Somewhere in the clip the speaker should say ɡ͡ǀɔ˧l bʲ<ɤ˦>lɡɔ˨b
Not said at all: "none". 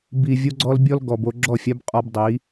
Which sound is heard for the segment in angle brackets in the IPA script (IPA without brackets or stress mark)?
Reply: ɔ˦